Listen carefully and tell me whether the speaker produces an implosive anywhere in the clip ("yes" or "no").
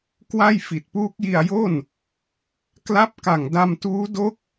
no